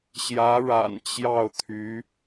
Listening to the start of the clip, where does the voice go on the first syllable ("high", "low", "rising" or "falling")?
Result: rising